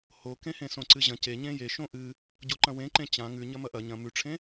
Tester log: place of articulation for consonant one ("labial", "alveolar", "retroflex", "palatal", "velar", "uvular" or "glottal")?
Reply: glottal